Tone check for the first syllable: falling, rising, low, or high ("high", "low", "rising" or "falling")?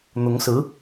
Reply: rising